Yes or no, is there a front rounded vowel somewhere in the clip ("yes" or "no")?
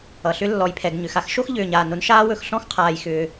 yes